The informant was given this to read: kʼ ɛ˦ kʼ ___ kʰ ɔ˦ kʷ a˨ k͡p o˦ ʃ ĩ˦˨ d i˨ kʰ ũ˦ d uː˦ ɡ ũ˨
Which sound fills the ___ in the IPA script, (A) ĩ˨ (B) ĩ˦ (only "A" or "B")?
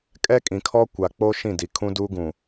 A